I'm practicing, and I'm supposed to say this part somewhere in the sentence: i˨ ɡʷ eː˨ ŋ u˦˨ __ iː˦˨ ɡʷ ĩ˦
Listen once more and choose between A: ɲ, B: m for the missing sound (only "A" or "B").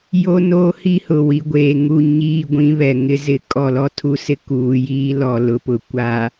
A